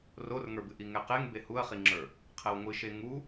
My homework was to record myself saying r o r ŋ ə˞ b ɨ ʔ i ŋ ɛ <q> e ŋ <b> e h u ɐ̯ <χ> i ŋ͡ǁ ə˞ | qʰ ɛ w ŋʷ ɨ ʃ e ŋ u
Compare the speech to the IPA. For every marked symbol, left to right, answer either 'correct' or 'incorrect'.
correct, correct, correct

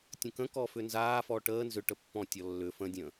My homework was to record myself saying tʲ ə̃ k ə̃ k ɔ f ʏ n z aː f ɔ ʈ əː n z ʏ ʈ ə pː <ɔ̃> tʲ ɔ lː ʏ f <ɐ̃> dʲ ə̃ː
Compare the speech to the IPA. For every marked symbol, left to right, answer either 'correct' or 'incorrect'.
correct, incorrect: ə̃

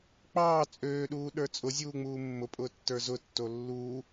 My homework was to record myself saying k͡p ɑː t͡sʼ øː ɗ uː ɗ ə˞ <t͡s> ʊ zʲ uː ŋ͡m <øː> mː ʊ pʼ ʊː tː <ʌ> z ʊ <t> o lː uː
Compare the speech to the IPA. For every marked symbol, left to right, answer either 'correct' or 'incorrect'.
incorrect: t͡sʼ, incorrect: uː, incorrect: ə˞, incorrect: tː

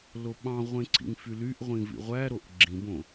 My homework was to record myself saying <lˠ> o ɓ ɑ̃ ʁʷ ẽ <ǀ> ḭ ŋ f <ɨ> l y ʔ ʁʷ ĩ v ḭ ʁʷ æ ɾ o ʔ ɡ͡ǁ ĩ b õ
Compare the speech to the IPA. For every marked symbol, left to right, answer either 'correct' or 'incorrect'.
incorrect: l, correct, incorrect: y

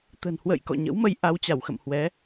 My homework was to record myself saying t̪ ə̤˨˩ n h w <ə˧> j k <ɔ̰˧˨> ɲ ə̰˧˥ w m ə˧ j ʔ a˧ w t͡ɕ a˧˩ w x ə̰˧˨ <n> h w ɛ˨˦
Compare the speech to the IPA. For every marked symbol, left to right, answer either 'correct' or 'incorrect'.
incorrect: ə̰˧˨, correct, incorrect: m

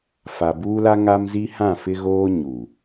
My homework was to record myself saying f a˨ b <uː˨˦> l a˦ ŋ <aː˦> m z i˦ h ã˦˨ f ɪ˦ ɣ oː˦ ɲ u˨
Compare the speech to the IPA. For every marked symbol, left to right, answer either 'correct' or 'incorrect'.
incorrect: uː˦, incorrect: a˦

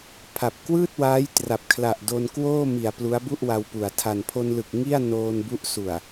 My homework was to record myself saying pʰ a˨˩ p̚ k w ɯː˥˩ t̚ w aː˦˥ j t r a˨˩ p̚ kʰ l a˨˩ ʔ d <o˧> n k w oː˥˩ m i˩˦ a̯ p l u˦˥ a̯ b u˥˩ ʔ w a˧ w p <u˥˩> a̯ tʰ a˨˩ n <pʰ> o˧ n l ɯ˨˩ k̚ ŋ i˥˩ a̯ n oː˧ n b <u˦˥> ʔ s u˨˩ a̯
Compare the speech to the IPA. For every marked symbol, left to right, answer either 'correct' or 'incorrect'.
correct, incorrect: u˨˩, correct, correct

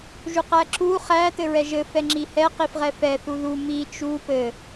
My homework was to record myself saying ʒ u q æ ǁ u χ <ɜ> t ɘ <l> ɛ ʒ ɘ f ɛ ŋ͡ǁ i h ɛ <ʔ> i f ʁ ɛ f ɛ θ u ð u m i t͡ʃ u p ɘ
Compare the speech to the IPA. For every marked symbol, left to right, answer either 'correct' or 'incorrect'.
incorrect: æ, incorrect: ɹ, incorrect: q

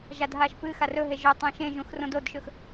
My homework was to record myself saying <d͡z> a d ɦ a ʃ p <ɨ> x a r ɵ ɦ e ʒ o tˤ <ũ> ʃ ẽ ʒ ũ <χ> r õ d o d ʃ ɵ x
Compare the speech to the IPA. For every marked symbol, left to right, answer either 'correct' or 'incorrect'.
incorrect: ʒ, correct, correct, incorrect: x

